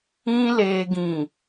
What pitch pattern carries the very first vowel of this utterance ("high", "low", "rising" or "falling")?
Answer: high